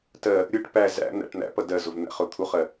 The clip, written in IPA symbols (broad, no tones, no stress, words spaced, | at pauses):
tɜ | ɾʲʊʈ pæ zæ̰ n̪æ̰ʈn̪æ̰pʌ dɜzʊv n̪æ̰χʊt̪ʰuχɜ